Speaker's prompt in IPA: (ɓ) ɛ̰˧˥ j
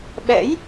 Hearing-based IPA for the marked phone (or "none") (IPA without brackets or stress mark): ɓ